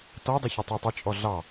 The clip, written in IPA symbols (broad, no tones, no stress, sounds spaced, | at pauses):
t ɔ dˤ ʊ ç ʌ tˤ æ tˤ ɪ t͡ʃʼ ɔ ɮ ɑ